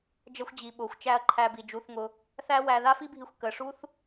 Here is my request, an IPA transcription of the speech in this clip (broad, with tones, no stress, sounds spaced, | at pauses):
d͡ʒ ʌ˧ xʷ d͡ʑ i˨ ɓ ʊː˨ xʷ t͡ʃ æ˧ ɐ̯ ǃʰ æ˧ b i˨ d͡ʒ u˧ θ ŋ ʊ˧ | θ æ˦ w æ˧ ð a˦ f i˦ bʱ i˧ xʷ k əː˨ ʂ u˦ θ